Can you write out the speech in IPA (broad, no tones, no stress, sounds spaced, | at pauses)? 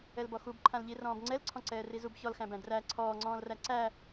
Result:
ɛ l b ɔ x u b ǃʰ ã l ʎ i r ɔ̃ː b ŋ͡ǀ ɛ l ǀʰ ɔ̃ ǀ ɛː r i z u b ç ɔ l x æ̃ b æ̃ d r æ ǀʰ ɔː ŋ͡ǀ ɔ̃ː l r æ ǀ æ